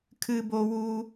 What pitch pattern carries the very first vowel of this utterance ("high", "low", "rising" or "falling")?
high